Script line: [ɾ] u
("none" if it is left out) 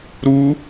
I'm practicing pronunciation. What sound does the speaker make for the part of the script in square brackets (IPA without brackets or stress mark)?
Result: ɾ